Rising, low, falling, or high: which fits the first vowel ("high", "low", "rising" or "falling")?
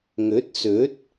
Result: rising